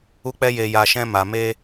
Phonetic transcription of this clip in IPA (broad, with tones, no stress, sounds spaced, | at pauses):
u˧ k͡p ɛ˧ j e˨ j a˨ ʃ ɛ̃˧ m a˨ m e˧